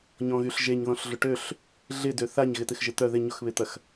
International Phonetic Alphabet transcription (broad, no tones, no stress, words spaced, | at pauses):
ɲɔ̃ɣyɬʒeɲ ðɔ̃ɬɮʊʈøɬ | ɮɪ døθaɲ ɣɪt̪ɪxʒɪt̪œ ðɪ ɲʊxβɪt̪ɐx